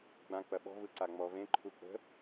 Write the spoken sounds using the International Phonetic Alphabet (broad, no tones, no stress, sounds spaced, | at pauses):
ɡ͡b ã k͡p ɐ ɓ ɔ̤ v ɯ ǀ a ŋ͡m ɔ v ẽ ǃʰ u k͡p ə̤